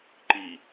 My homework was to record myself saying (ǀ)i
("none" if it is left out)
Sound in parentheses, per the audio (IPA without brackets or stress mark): ǃ